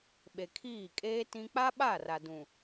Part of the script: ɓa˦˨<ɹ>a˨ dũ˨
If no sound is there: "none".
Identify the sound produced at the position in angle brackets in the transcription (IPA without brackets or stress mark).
r